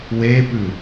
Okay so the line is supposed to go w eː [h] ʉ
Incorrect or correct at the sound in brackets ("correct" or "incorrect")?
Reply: incorrect